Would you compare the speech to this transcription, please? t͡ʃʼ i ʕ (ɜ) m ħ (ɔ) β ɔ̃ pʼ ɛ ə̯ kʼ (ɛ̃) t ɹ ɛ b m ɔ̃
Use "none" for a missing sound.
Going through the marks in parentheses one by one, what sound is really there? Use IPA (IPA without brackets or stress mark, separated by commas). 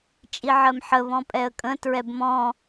ɜ, ə, ə̃